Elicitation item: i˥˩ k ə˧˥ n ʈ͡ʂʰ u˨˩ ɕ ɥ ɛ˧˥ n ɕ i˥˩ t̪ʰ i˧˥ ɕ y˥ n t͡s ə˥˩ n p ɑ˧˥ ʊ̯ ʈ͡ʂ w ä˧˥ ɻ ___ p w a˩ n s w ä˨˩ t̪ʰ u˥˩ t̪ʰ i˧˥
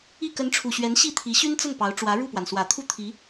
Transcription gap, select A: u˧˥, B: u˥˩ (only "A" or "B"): B